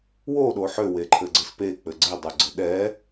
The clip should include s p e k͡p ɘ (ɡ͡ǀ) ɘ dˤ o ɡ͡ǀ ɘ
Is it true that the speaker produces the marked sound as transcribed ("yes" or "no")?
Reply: yes